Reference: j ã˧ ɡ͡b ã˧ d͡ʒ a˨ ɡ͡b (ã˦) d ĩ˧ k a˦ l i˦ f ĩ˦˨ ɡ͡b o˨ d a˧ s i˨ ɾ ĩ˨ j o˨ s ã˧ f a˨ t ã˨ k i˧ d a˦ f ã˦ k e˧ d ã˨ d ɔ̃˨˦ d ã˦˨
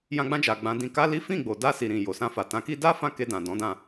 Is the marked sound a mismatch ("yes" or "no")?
yes